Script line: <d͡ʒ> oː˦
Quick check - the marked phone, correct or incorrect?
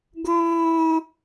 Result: incorrect